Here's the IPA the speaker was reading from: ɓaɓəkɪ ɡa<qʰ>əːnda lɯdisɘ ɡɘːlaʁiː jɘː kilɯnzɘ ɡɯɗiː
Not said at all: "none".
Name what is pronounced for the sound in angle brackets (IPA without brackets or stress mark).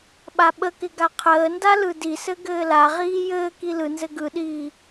qʰ